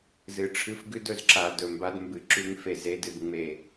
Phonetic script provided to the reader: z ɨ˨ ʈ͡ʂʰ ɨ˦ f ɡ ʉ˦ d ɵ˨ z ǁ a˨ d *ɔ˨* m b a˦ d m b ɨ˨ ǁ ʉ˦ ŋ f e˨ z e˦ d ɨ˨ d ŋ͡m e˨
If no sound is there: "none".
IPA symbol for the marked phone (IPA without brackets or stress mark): ɵ˨